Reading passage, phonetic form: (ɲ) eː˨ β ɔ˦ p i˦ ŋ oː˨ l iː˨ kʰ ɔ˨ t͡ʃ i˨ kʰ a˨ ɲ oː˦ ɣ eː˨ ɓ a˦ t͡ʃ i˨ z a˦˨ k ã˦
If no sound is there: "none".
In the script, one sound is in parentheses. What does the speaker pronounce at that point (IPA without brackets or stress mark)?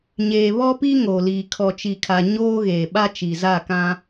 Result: ɲ